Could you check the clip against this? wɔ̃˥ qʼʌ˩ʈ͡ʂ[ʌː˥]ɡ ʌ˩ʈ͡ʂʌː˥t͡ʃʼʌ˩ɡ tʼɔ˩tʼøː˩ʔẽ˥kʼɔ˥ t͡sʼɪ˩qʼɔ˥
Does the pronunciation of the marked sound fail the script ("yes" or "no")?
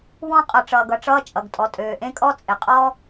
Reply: yes